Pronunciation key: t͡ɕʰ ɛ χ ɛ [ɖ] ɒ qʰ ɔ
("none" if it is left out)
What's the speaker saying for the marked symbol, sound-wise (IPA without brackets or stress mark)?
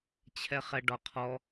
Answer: ɖ